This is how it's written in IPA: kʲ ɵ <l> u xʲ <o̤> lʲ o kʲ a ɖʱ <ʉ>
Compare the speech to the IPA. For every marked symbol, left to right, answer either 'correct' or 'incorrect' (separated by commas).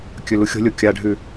correct, correct, correct